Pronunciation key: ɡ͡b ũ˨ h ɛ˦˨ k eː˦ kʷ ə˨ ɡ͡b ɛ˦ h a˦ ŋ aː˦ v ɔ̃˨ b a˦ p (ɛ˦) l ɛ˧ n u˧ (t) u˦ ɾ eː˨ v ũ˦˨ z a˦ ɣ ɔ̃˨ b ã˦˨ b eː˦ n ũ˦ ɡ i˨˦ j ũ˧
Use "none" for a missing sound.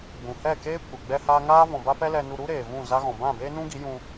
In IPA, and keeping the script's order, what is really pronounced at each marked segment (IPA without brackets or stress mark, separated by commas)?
ɛ˦, ɾ